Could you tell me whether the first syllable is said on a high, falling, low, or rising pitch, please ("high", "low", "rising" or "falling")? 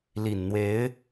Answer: low